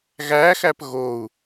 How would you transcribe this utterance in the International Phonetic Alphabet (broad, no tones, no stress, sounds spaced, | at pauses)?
ɣ æ x æ p ɣ o u̯